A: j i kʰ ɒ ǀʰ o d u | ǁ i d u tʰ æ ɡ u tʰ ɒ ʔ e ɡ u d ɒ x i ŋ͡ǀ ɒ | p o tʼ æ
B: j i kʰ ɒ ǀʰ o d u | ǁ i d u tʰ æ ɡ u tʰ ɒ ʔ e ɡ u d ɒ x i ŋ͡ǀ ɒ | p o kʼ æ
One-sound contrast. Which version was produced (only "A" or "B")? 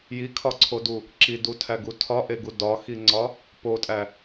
A